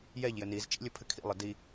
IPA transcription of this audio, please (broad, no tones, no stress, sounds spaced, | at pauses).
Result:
j ɛ ʎ j ɘ n i z t͡ʃ ḭ lʲ ɘ pʰ ɘ kʰ ḭ lˠ ɘ d i